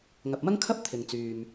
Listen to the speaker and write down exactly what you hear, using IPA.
ŋ ɐ˨ p̚ m ɐ˥ ŋ kʰ ɐ˥ p̚ t̪ʰ ɪ˨ ŋ t͡s yː˨ m

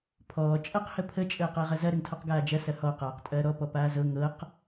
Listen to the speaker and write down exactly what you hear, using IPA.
pʰ ɔː t͡ʃʼ ɐ q h ə pʰ ə t͡ʃʼ əː q əː ʁ ɐ z ɐ ɾ ə ŋ tʰ ɔ q ɡ aː d͡ʒ ɐ s ɐ h ɔ q aː q tʼ ɐː ɾ ɔ p ɔ p aː z ɤ ŋ ɤ q

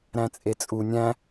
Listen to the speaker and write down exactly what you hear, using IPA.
ɾ æ̃ t͡sʼ e t͡sʼ u nʲ æ̃

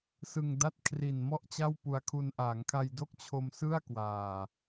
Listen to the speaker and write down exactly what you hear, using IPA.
s ɯ˧ ŋ d a˥˩ t̚ kʰ r i˨˩ n m ɔ˥˩ ʔ t͡ɕ a˥˩ w p u˧ a̯ kʰ u˧ n ʔ a˩˦ ŋ kʰ a˧ j d o˥˩ k̚ t͡ɕʰ o˧ m s ɯ˥˩ a̯ k w aː˨˩

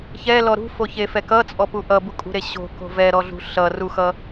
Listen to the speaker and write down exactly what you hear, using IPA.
ç ɛ l ɔ ɾ ṳ f o ç e f ɛ k ʌ t͡sʼ ɔ p u ʔ ʌ b u kʼ ṳ ɾ e ɕ o̤ k o̤ v ɛ ɾ ɔ ɮ ṳ ɬ ʌ r u x ʌ

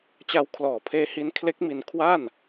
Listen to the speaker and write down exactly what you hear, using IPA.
t͡ɕ a˦˥ w kʰ l ɔː˨˩ pʰ eː˦˥ h i˦˥ n kʰ l e˦˥ k̚ m i˧ n kʰ w a˥˩ n

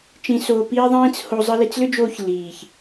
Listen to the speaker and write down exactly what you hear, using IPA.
t͡ʃ ĩ˧ s oː˧ p iː˦ ðˤ ĩː˦ t͡s h o˧ zˤ ɯ˧ l i˧ t͡s l ʏ˦ d͡ʒ oː˧ ç l iː˨ ç

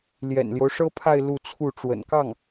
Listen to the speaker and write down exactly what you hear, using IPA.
l j ɛ̰˨˩ n l j o˦ ʊ̯ ʂ ɤ˥ pʰ a˥˧ ɪ̯ l u˥˧ t͡sʰ u˥˩ ʈ͡ʂ w ə̰˨˩ n k ɑ˥˩ ŋ

